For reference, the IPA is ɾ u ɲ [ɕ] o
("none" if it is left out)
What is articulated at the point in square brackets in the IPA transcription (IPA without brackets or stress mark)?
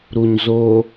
z